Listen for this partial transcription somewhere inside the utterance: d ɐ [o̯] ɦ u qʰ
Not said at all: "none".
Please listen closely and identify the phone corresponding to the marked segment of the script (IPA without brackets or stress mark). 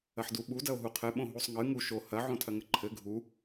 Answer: o̯